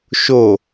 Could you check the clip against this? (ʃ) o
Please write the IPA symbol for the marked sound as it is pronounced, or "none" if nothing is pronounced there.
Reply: ʃ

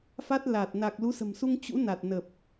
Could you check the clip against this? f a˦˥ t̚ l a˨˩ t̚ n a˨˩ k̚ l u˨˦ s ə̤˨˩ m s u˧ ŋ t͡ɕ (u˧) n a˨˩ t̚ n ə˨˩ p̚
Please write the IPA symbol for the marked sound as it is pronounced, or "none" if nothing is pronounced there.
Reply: ṵ˧˥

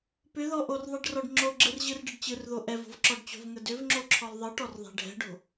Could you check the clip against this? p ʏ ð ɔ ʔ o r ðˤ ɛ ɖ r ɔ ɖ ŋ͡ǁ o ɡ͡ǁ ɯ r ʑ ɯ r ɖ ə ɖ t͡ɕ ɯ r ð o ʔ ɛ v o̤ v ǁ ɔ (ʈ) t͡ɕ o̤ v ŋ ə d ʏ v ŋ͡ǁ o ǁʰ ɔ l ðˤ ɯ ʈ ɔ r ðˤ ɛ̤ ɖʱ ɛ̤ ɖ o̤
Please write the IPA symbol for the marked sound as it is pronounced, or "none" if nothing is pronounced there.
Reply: ɖ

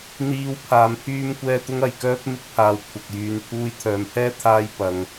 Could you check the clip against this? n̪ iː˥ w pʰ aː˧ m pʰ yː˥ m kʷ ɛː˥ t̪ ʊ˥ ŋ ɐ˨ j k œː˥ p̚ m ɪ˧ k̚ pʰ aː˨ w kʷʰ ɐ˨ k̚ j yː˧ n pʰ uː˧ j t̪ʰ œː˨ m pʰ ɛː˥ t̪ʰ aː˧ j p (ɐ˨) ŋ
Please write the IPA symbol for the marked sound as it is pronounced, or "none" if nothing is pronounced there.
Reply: ɐ˨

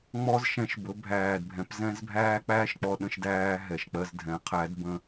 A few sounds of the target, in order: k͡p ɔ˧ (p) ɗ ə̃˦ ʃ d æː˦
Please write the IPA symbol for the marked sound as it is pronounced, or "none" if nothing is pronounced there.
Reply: none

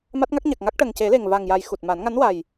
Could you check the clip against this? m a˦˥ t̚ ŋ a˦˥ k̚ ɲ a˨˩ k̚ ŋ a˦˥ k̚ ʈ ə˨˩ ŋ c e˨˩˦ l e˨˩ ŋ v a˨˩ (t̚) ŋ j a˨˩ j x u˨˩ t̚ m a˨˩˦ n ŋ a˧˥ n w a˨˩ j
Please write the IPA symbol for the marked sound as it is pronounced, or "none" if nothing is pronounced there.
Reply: none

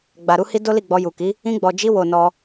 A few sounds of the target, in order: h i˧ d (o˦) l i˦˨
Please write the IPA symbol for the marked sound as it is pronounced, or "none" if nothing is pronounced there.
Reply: o˦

